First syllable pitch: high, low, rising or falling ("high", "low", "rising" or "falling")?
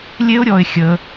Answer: high